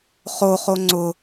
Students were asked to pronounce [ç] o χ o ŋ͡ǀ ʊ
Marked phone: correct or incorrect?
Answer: incorrect